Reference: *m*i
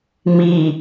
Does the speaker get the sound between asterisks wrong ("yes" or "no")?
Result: no